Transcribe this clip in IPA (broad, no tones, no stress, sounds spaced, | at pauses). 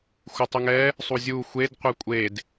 xʷ ɨ tˤ u ŋ ɛ | sˤ u zʲ u xʷ e d qʷ ɛ kʷʼ e d